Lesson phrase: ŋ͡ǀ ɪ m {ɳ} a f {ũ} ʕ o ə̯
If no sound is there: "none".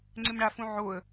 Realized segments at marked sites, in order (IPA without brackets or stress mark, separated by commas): ɳ, ũ